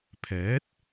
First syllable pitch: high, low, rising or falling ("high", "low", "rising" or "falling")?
rising